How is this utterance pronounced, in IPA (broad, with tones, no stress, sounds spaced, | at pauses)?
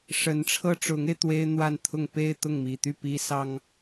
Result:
ʂ ə˧˥ n ʈ͡ʂʰ ɤ˥ ʈ͡ʂ ʊ˧˥ ŋ e˧ ɪ̯ t̪ w e˥ ɪ̯ n̪ w a˥˧ n t̪ʰ ʊ˥˧ ŋ p e˥˧ ɪ̯ t̪ ʊ˥˩ ŋ m i˨˩ t̪ y˥˩ p i˥ s ɑ˥ ŋ